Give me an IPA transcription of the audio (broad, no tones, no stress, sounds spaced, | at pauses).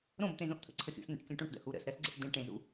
ɾ õ b t̪ ẽ z õ ʔ t̪ʰ ə̰ ǀʰ ə xʲ ṵ s n̪ ə̰ ʈ kʲ õ ʈ õ ʈ d ə̰ h u ɾ ə̰ s ɾ ɜ s ɡ͡ǀ ə̰ ʈ d ẽ ʈ ẽ z ṵ